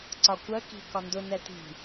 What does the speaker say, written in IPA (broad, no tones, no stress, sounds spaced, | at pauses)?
ǀ ɒ kʷ ɜ k i̤ k ɒ n d ʊ n ɛ t i̤